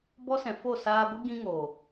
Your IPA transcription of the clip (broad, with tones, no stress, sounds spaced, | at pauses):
b ɔ˦ s ɛ̃˨ f o˦˨ s aː˧ ɡʷ ɨ˦ ɡ ĩ˦ ŋ oː˨